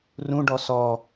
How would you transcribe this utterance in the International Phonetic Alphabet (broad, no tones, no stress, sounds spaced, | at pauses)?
r ũ ɖ ɔ s ɔ